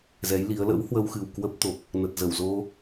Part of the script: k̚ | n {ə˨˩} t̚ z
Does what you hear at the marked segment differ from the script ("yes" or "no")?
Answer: no